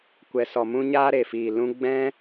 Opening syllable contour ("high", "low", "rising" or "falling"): low